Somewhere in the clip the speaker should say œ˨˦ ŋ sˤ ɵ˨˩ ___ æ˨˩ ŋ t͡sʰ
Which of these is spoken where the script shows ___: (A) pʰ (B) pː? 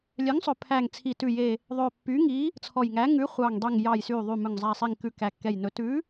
A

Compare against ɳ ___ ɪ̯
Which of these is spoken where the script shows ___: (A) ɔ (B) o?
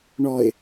A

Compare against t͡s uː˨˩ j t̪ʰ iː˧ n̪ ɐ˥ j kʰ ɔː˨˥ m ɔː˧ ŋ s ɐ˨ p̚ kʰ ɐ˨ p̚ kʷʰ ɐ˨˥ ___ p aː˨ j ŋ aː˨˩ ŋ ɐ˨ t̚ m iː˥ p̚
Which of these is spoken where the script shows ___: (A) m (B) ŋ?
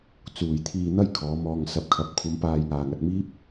A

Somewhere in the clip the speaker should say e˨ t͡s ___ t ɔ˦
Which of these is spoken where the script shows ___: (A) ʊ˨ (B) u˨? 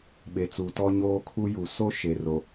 B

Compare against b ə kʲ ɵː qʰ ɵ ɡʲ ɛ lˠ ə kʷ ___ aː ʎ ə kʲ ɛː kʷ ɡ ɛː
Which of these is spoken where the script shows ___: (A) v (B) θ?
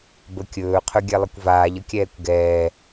A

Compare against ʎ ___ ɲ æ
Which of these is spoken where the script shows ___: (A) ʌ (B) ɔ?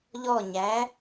B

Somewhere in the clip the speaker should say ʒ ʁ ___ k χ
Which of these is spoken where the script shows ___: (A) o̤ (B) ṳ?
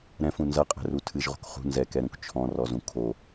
A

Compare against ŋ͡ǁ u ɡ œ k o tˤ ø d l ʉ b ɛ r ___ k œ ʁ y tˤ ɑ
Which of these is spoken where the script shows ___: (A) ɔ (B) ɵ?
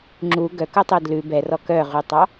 A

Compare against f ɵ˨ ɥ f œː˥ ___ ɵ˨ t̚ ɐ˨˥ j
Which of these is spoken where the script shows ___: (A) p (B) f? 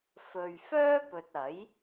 A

